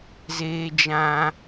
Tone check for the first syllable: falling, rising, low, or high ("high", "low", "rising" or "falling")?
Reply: high